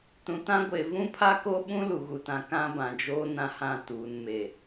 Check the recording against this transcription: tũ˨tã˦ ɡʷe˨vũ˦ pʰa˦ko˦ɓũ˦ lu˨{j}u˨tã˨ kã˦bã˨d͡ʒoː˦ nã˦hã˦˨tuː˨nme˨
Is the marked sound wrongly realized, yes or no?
yes